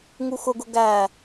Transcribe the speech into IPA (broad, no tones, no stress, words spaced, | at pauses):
ŋuxʊɡʊ ɡæ